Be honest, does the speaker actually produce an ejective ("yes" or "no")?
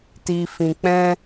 no